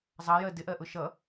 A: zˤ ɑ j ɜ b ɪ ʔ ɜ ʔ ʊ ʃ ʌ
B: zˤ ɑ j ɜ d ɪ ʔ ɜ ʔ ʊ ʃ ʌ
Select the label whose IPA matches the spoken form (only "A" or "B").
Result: B